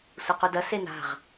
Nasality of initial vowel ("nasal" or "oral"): oral